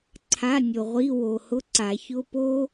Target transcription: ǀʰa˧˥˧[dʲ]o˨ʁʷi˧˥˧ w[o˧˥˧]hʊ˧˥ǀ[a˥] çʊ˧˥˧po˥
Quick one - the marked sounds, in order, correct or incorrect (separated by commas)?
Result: incorrect, incorrect, incorrect